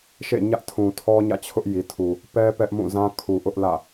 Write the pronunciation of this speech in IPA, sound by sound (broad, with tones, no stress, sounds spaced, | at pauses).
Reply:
ʃ ḛ˦˨ ɲ ä˦ ʔ tʰ ũ˨ tʰ ɔ˦ ɲ ä̰˦˨ t͡ɕʰ ʊ˦ ʔ j i˨ tʰ u˨ | p ɛ˦ p ɛ˦ ʔ m ũ˦˨ z ã˦ kʰ u˨ ʔ ʊ˦ ʔ l ä̰˦˨